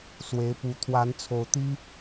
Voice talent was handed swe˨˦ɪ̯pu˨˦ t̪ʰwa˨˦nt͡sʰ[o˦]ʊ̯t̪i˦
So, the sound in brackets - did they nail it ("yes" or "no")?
no